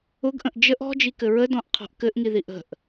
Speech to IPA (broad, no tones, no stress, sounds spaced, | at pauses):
ʊ ɡ ʔ ə̃ ʔ d͡ʒ ə ʔ ɔ̤ d͡ʒ i k ɘ ɹ ə d ɔ̃ ʔ qʰ ɔ̤ ʔ k ɘ ʔ ŋ i ð i ʔ ə̤ ʔ